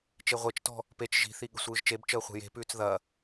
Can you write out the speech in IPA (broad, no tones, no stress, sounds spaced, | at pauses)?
t͡ʃ e ʁʷ e t͡ʃ t ɔ̤ | p e t͡ʃ ʒ i̤ θ i ɠ ə̤ sʷ ɯː ʒ t͡ʃ e b t͡ʃ əː χʷ e̤ j e̤ p ʉː t͡s ð ɐ